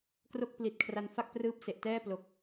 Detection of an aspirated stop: present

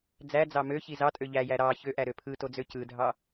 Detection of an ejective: present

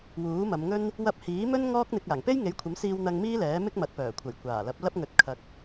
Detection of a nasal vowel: absent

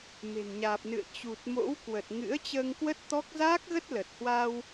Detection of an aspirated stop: absent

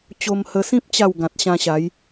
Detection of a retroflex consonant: absent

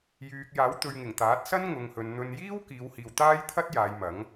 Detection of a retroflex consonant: absent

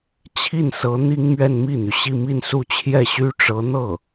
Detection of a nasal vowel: absent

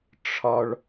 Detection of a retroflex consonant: present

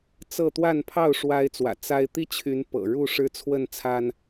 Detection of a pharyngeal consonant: absent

